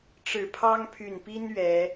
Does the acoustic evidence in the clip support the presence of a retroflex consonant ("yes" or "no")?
yes